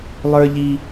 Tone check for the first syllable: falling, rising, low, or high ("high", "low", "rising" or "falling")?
high